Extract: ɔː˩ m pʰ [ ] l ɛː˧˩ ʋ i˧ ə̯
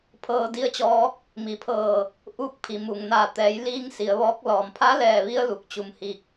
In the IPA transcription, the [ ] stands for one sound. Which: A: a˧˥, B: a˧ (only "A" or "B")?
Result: A